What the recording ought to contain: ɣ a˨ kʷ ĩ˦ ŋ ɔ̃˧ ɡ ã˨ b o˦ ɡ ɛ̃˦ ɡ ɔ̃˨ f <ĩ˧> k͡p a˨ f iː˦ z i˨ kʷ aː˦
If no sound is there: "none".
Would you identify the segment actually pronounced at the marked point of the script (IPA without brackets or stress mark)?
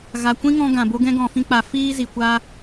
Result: ĩ˧